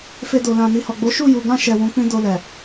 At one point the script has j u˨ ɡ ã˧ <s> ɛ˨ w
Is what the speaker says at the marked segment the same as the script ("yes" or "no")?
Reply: no